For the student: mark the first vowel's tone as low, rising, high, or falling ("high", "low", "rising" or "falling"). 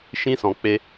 high